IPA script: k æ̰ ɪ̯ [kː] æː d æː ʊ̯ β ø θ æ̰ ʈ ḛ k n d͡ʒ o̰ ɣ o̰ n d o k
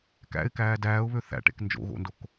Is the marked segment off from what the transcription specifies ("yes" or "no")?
yes